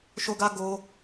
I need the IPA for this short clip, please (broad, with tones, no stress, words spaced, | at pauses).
ʃo˦ɡa˦ ɡo˦